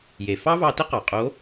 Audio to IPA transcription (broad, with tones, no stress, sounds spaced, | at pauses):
j e˩ f ɑ˥ v ɑ˧ t ə˥ q ɑ˩ qʼ o˧˥